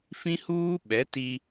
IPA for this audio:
f ĩ˦ h uː˦ ɓ ɛ˨˦ t i˦

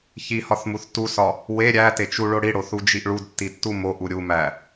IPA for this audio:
ç i h ɒ θ m u θ t u s ɒ | w e ɾʲ æ t e t͡ʃ u ɭ o ɽ i ɽ o θ u d͡ʒ i ʔ ɭ u d tː i tː u m o ʔ u ɾʲ u m æ

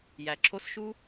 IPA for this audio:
j æ˩ ǁʰ o˧˥ s ʃ u˧

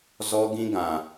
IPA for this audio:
z ɔ˦ ɡ ĩ˦ ɡ ã˨

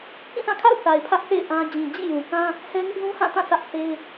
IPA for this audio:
k ĩ˦˨ θ ã˦˨ kʰ a̰˦˨ ʊ̯ θ a˨ ɪ̯ pʰ ä˦ ʔ θ ḛ˦˨ ɪ̯ ʔ ã˦ d͡ʑ ĩ˨ d͡ʑ ḭ˦˨ j ũ˨ k ã˦ | h ɛ˦ ŋ ɪ˦ ʔ z ũ˦ h ã˦˨ t ã˦˨ sʰ ä˦ ʔ θ e˦ ɪ̯

